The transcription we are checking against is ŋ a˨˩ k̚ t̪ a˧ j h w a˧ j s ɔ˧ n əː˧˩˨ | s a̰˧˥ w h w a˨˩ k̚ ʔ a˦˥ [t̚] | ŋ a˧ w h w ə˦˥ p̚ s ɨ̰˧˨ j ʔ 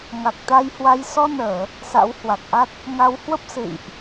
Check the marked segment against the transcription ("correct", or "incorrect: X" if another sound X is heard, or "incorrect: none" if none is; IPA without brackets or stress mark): correct